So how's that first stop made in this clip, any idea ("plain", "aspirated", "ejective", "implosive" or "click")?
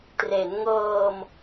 plain